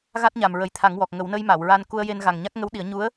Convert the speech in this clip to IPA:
ɣa˦˥t̚ɲa˨˩m ɹə˨˩jt̪ʰa˨˩˦ŋwɔ˨˩k̚ ŋə˨˩˦wnə˧jma˨˩˨w ɹa˧n ku˧ə̯je˧n ɣa˨˩ŋɲa˦˥k̚ ŋə˧˥wɗi˨˩˦ə̯ ɲu˧˥ə̯

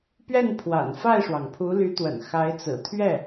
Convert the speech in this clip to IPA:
pɥɛ˥˩n pʰwa̰˨˩nfa˥˩ɪ̯ʂwɑ˩ŋ pʰu˧˥ly˧˥t̪wə̰˨˩n xa˧˥ɪ̯t͡sɹ̩˨˩ t̪ʰɥɛ˥˩

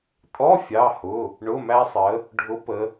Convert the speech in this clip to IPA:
tʼɔ˧˥˧ fʲɑ˧˥˧hʊ˧˥˧ | ɳʊ˧˥˧mæ˥sˤə˧˥ | ɖʱʊ˧˥ pə˧˥

